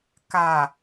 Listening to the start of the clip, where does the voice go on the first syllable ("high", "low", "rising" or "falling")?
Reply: low